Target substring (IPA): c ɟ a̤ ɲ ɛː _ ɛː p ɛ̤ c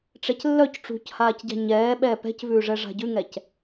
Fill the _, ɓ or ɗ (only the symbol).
ɓ